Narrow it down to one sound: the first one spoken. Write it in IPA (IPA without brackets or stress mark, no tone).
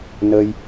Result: n